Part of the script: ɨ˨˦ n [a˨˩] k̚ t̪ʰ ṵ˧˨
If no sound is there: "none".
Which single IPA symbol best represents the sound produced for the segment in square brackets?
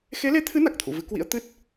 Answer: a˨˩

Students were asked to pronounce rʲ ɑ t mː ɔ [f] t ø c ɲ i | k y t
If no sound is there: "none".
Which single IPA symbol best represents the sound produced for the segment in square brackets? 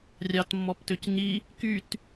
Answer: p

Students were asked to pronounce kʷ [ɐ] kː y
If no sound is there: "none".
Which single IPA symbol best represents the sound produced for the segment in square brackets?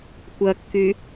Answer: ɐ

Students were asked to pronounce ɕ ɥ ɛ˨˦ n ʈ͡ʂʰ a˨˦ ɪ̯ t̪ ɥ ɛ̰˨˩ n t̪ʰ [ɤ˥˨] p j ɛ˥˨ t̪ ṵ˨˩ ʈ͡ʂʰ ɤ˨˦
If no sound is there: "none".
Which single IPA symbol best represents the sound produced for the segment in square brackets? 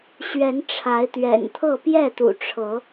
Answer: ɤ˥˨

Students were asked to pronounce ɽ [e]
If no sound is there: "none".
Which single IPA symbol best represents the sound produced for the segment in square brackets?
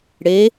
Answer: e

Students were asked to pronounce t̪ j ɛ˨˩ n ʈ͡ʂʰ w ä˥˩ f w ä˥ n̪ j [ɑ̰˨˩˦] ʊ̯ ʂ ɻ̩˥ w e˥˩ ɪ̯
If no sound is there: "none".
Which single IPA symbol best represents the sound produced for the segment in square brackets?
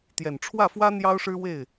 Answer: ɑ˥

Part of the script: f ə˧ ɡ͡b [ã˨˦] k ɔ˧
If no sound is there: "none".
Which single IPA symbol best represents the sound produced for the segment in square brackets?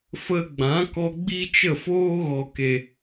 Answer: ã˨˦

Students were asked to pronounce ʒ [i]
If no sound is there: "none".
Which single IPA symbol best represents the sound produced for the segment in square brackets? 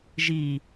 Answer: i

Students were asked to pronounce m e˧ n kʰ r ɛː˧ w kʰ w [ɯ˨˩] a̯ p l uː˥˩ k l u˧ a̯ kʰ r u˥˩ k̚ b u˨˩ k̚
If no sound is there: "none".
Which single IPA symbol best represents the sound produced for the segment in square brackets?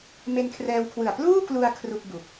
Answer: ɯ˨˩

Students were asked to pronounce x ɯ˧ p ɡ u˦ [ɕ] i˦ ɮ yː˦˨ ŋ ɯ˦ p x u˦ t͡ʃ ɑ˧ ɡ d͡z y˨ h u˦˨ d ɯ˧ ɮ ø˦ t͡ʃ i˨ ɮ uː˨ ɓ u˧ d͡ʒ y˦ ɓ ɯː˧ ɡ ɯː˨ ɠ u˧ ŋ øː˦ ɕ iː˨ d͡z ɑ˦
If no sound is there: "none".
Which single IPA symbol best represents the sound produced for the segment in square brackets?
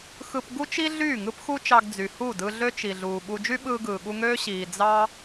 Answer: t͡ʃ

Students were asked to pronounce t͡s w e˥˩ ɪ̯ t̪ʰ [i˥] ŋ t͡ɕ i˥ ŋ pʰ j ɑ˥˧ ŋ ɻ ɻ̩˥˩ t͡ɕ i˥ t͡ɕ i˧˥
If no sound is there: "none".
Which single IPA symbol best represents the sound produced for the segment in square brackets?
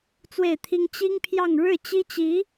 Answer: i˥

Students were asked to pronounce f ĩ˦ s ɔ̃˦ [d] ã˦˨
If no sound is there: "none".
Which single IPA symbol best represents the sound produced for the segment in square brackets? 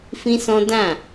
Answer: d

